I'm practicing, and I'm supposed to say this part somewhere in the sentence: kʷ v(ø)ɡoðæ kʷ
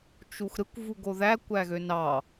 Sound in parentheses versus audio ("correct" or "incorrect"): incorrect